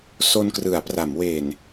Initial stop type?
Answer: plain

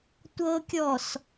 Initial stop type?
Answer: plain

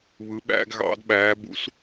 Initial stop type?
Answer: implosive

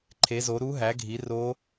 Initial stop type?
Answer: click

